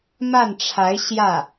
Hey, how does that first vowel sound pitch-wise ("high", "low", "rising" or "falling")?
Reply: falling